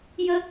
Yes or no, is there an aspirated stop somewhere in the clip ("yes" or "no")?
no